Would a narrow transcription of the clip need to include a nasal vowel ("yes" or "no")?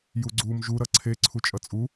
no